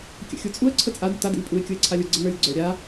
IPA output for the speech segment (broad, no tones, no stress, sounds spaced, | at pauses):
kʲ ə̰ xʲ u t͡sʼ u ə̯ ǀʰ ə t͡sʼ a d ʊ t a d ə̰ lʲ pʼ u ɪ̯ kʲ ʊ ɪ̯ ǀʰ a lʲ ʊ ɡ͡ǀ ə n ə˞ lʲ ɡ͡ǀ ə˞ ɾʲ a